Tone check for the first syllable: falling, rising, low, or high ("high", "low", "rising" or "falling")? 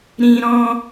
high